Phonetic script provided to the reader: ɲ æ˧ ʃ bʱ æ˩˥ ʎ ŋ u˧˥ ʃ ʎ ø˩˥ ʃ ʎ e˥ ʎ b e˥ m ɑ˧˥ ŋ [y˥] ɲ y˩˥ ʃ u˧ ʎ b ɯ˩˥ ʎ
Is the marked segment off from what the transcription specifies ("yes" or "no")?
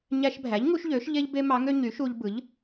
yes